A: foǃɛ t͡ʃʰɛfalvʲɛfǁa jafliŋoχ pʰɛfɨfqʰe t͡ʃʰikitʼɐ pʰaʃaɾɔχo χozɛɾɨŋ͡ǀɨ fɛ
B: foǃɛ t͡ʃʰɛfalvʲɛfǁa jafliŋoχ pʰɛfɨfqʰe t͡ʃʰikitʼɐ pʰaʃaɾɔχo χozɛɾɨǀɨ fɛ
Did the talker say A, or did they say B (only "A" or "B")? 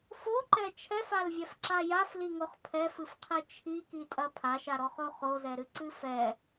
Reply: B